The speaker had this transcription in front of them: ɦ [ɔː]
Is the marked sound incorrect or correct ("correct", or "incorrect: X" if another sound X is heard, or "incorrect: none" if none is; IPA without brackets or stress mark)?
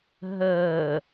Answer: incorrect: əː